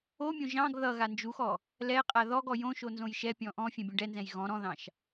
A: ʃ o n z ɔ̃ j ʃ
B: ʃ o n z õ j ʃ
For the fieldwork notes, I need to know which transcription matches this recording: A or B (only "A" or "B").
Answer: B